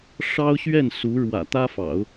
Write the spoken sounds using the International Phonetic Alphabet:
ʂ ɑ˥ ʊ̯ ɕ ɥ ɛ˥˩ n s u˧˥ ɻ w ä̰˨˩ t̪ ä˥ f ɑ̰˨˩˦ ʊ̯

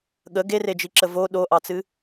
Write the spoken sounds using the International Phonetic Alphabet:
ɠ ə ɡ e r e d͡ʒ i ǁ ə v o ɗ o ʔ ɑ t͡s ɨ

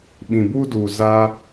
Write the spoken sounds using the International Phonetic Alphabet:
ɓ ĩ˨ b u˧ d u˨ z aː˦

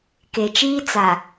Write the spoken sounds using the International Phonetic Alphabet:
k e˨ t͡ʃ iː˦ t͡s a˨

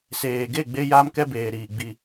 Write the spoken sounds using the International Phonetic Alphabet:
s eː˨ ɡ e˦˨ ɡ͡b e˦ j aː˦ m k ɛ˦ b eː˨ ɾ iː˨ ɡ͡b i˨

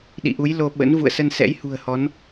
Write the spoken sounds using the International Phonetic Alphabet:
ɗ ḭ˧˨ ʔ u˨˦ j l o˧ ɓ ə̰˧˥ n v ṵ˧˨ ə̯ s ə˧ n s ɛ̰˧˥ j h ṳ˨˩ ə̯ h ɔ˨˦ n

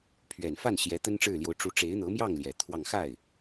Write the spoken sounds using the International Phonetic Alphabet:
pʰ ɥ ɛ˨˩ n f a˥˩ n ɕ j ɛ˧˥ t̪ ə˥ n ʈ͡ʂ ɻ̩˥˩ l j o˧˥ ʊ̯ ʈ͡ʂ u˧˥ ʈ͡ʂ e˧˥ ɪ̯ n̪ ɤ˧˥ m j ɑ˥˩ ŋ l j ɛ˨˩ t̪ʰ w ɑ˥˧ ŋ x a˥˩ ɪ̯

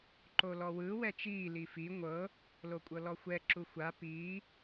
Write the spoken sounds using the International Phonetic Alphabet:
ǃ o l ɔ w ɯ w ɛ t͡ʃ iː l i f i ŋʷ ɤ | l o kʷʼ ɤ l ɔ xʷ ɛ ǁ u xʷ a p iː

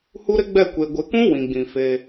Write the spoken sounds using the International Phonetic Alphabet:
h u˦ ɾ ɪ˦ ɡ͡b ɛ˦˨ kʷ e˨ ɡʷ ɪ˨ k ũ˦ w ĩ˨ ɡ͡b ĩ˨ f e˦

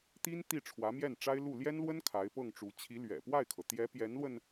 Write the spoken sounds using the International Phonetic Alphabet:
t̪ i˥ n t̪ i˥˩ ʈ͡ʂʰ w ä˧˥ m j ɛ˥˩ n ʈ͡ʂ a˥ ɪ̯ l u˥˩ l j ɛ˥ n l w ə˥ n kʰ a˧˥ ɪ̯ p ɤ˥˩ ŋ ʈ͡ʂ u˧˥ t͡ɕʰ i˧˥ l ɥ ɛ̰˨˩ p w a˥˩ ɪ̯ kʰ ɤ˩ t̪ j ɛ˧˥ p j ɛ˧˥ n l w ə˧ n

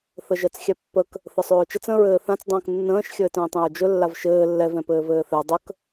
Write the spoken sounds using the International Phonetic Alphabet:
θ ə ʒ ɜ t͡s xʲ ɛ pː ə k | θ ə sˤ ɵː t͡ʃ ə t͡s ə̃ ɹ ɘː θ ã t͡s dˤ ə̃ː k nː ə̃ː ʃ xʲ ɘː t ə̃ː tˤ ɛ̃ ɹ d͡ʒ ɵ lː a v ʃ ɘː lː ɛ v ɛ̃ p ɘː v ɘː θ ɛ dˤ ə k

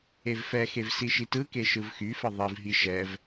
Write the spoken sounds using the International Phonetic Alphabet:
e v f ɛ x e v s i ʃ i t ɯ k e ʃ ɯ v x y f ə ðˤ i v ɦ i ʃ ɛ v

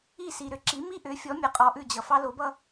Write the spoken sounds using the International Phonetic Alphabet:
i˥˩ s i˩ ɾ ʏ˥˩ ǁ i˩˥ m i˥ ʔ ʏ˩˥ fʲ ɔ˩˥ mʲ ɛ˩ qʼ ɔ˧ ʔ ʉ˥˩ d͡ʑ ʌ˩ f ɑ˥ l o˩˥ b ʌ˥

